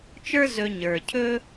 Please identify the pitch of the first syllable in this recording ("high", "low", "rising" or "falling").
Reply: high